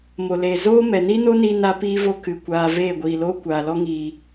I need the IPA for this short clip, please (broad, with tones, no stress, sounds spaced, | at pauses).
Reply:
m o˨ l eː˨ z oː˦ m ɛ˨ n i˦ n o˦ n iː˧ n a˦ p iː˦ v o˦ k ɨ˨ kʷ aː˧ v eː˦˨ ɡʷ iː˨ l oː˦ kʷ aː˨ l ɔ˦ ŋ iː˨